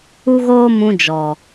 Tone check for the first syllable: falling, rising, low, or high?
high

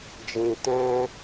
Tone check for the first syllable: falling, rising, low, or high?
low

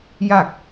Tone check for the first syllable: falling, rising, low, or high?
falling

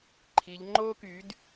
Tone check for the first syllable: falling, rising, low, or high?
rising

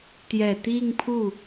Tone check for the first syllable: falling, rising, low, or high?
low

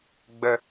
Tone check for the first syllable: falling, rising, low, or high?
low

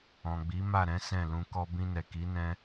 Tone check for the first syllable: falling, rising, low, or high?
low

